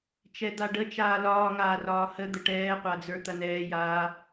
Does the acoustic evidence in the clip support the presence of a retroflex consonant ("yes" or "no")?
yes